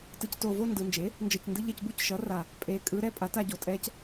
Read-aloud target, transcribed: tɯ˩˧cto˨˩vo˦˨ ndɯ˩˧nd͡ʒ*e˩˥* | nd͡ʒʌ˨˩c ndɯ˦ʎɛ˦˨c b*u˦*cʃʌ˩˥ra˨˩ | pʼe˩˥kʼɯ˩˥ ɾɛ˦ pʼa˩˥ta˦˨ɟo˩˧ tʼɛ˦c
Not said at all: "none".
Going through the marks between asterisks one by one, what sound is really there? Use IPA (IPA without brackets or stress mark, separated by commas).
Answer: e˩˥, u˦